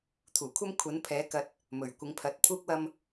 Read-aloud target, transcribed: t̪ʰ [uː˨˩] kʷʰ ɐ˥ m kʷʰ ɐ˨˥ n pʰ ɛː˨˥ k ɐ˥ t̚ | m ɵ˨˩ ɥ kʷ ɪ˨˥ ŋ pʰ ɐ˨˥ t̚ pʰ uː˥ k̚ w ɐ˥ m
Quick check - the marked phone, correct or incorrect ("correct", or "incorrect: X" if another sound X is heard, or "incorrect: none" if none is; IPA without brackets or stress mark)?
correct